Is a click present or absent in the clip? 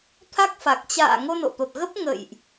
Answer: absent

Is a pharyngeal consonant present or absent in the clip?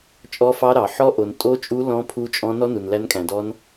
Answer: present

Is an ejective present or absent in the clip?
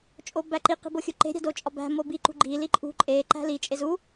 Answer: present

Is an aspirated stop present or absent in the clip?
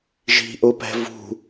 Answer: absent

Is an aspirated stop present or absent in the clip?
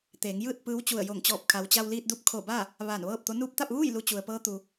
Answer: present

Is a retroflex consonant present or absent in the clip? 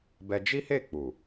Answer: absent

